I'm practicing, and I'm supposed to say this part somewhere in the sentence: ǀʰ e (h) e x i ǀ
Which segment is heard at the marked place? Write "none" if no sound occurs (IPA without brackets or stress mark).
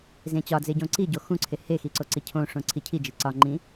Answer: h